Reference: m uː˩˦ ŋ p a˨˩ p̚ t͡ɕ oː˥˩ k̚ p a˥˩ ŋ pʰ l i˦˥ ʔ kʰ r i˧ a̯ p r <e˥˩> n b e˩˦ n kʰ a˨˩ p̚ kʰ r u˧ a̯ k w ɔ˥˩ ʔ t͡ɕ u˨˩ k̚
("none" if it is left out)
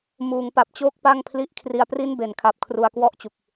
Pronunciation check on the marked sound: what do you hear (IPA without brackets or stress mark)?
i˥˩